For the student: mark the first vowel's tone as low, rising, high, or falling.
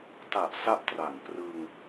low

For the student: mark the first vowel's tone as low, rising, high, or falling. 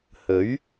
rising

